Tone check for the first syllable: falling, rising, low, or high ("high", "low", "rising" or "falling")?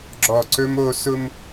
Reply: low